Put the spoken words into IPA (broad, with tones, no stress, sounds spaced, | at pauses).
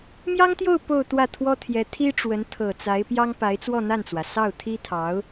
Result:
m j ɑ˥ ŋ t̪ j o˥˧ ʊ̯ p o˥˧ ʊ̯ t̪ w ä˥˩ t̪ʰ w ɔ˥ t̪ʰ j ɛ˧˥ t̪ʰ i˥ ʈ͡ʂ w ə˧˥ n t̪ʰ ɤ˨˩ t͡s a˧˥ ɪ̯ p j ɑ˥ ŋ p a˧˥ ɪ̯ t͡s w ɔ˥˧ n̪ a˥˩ n t͡s w ä˩ s ɑ˥˩ ʊ̯ t̪ʰ i˥ t̪ʰ ɑ˧˥ ʊ̯